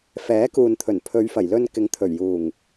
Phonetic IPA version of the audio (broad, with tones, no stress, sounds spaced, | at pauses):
f ɛː˨˥ k uː˨ n t̪ʰ ɵ˨˩ n pʰ ɵ˨˧ ɥ f ɐ˨˩ j l ɵ˧ n k ɪ˨˥ ŋ t̪ʰ ɵ˨˩ ɥ j uː˨˩ ŋ